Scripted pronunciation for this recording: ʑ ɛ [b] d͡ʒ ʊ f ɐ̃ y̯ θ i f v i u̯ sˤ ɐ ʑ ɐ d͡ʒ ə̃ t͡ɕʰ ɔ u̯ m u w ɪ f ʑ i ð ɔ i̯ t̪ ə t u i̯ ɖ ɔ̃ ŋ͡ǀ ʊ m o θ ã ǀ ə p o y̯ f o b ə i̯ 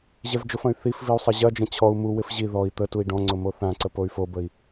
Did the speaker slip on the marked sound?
yes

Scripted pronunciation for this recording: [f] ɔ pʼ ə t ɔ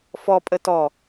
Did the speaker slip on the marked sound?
no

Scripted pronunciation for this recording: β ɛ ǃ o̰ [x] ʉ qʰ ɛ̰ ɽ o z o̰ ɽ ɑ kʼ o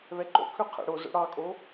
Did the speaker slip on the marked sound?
yes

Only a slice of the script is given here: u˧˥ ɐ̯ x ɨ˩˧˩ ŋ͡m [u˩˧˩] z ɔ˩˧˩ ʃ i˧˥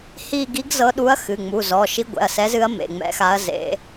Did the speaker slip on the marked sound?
no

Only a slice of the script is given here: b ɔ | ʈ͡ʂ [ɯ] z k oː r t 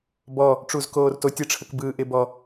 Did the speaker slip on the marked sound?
yes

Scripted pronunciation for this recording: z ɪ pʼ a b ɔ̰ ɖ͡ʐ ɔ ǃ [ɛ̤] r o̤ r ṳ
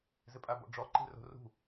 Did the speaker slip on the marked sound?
yes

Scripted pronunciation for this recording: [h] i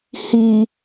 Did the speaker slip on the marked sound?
no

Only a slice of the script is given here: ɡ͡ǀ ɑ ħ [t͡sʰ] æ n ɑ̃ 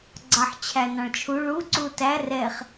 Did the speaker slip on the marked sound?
yes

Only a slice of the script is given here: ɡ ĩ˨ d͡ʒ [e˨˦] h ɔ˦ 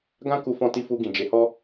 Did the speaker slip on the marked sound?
no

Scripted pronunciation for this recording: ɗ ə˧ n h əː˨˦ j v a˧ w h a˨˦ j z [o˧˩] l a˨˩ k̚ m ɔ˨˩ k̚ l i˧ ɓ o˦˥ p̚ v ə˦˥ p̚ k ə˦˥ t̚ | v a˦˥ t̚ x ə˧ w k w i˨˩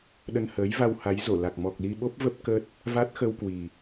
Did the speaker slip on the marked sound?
no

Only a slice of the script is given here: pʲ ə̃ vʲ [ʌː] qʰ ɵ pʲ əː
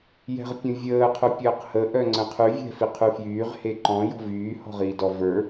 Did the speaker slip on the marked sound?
yes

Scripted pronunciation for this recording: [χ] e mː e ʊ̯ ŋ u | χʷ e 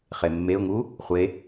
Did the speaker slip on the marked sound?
no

